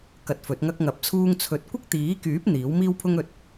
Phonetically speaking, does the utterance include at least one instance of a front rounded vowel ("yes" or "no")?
yes